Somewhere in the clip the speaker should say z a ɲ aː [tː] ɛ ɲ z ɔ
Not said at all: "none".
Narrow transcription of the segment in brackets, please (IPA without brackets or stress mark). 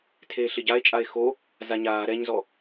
ɾ